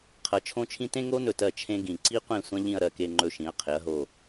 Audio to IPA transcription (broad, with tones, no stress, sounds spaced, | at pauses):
qʰ ɐ˩˧ t͡ʃʰ õ˥ t͡ʃʰ ĩ˥ t ẽ˥ ŋ o˥ n ɵ˧˩ t ɜ˧˩ t͡ʃʰ ẽ˥ ɡ ĩ˧˩ ǀ i˥ qʷ ẽ˥˧ sʷ ɐ̃˥ ʎ ĩ˥˧ ɐ̯ ɾ ɜ˧ k e˧ ŋ͡ǃ ɵ˧ ʃ ĩ˩˧ ɐ̯ qʰ e˩˧ ɐ̯ ɦ o˧˩